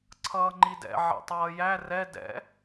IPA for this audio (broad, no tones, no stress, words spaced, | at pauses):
ǀʰʌːŋ͡ǃidɛ̰ ʕɛ̰tˤʌːjæ rɛ dɛ̰